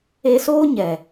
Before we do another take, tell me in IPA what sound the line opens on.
e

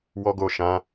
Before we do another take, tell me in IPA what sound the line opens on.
w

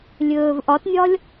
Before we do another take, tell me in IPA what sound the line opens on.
lʲ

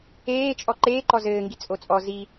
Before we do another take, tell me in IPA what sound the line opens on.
eː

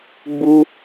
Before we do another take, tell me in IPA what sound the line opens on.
ɡ͡b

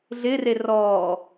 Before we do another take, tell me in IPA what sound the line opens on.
ɮ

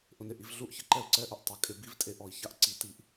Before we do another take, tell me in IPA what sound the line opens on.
ʔ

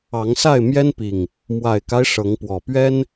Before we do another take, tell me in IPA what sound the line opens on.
ɑ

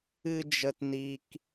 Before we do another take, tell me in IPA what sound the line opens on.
ɨ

